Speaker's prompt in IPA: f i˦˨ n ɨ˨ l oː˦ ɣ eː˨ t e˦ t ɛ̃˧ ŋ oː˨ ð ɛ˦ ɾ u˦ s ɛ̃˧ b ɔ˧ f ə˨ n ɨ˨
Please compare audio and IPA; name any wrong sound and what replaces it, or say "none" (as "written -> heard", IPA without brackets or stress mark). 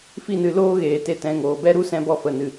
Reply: ð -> b